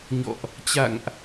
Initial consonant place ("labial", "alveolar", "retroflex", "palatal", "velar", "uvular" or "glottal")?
palatal